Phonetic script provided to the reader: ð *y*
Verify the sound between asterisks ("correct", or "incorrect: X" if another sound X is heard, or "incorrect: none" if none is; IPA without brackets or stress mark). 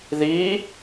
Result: incorrect: i